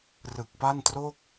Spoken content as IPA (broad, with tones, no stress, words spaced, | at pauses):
rɯ˨˩k̚pa˥˩ntroː˥˩k̚